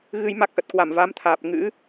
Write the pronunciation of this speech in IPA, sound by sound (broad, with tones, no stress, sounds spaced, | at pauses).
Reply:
ɣ ɨ˧ j m a˦˥ k̚ ʔ ə˨˩ t̚ k w a˧˩ m v a˨˦ m t̪ʰ aː˨˩ p̚ ŋ ɨ̰˧˥